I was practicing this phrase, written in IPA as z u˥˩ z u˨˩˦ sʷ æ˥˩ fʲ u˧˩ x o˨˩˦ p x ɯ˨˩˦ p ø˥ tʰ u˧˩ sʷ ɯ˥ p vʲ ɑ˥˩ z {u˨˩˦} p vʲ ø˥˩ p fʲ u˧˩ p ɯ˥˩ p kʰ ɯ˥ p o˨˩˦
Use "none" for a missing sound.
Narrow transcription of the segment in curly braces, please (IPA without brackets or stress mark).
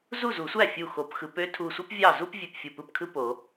u˥